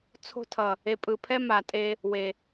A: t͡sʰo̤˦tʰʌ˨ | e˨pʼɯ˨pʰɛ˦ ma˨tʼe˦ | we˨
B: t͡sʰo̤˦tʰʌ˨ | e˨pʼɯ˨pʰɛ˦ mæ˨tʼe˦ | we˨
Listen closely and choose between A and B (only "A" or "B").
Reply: A